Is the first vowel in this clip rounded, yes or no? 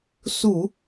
yes